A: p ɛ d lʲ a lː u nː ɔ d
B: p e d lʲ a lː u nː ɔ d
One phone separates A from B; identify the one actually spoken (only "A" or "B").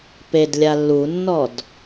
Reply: B